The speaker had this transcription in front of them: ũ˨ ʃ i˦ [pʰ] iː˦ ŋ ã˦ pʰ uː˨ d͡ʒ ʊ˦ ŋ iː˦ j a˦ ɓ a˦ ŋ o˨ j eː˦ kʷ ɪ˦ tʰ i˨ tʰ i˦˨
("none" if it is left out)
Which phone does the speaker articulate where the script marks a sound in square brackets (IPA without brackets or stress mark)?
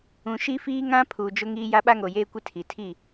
f